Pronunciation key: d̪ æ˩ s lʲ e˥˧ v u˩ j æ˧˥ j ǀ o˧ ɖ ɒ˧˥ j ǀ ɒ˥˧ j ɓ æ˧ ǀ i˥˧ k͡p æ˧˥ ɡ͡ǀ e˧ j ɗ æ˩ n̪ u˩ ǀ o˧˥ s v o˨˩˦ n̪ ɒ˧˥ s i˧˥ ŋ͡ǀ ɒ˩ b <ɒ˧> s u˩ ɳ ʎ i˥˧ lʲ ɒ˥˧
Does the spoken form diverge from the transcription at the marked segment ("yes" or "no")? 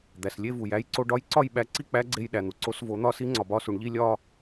no